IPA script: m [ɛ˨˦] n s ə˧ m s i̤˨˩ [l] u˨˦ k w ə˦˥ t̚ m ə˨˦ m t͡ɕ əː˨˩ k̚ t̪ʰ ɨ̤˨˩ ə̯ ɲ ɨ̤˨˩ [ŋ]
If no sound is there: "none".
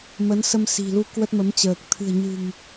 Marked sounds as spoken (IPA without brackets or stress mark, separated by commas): ə˨˦, l, ŋ